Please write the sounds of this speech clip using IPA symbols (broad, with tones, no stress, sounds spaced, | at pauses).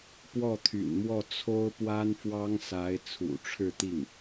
p w ɔ˥˩ t̪ʰ y̰˨˩ n m w ɔ˥˩ t͡sʰ o˥ ʊ̯ p w a˥ n f w ɑ˥ ŋ s a˧˥ ɪ̯ t͡sʰ ṵ˨˩ ʈ͡ʂʰ ɻ̩˥˧ t̪ i˥˩ ŋ